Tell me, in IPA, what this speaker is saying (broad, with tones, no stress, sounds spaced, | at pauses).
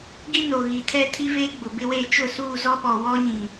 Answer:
ɡ i˦ n o˨ ɣ i˨ tʰ ɛ˦ tʰ i˦ v eː˦ ɡ͡b ʊ˨ b ɪ˦ w eː˦ t͡ʃ ʊ˦˨ s uː˦˨ z ɔ˦ ɓ ɔ˨ w ɔ˦ ɲ ĩ˨